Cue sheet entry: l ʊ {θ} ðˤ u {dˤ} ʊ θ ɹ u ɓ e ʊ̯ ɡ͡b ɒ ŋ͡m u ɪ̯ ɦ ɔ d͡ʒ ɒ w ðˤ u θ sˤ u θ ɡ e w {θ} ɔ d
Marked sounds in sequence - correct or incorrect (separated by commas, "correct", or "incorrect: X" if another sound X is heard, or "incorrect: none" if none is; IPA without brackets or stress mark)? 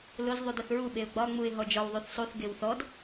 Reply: incorrect: z, incorrect: d, correct